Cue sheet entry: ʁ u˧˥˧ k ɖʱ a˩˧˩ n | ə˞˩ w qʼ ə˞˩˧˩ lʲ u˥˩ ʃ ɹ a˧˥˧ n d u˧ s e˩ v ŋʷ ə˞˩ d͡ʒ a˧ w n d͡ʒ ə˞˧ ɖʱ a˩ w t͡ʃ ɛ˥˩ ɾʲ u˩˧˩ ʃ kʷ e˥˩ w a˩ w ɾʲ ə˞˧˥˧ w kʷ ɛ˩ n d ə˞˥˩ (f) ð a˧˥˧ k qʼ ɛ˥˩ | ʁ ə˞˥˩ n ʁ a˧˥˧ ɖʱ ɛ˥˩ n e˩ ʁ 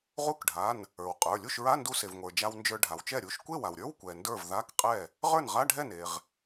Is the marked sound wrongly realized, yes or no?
yes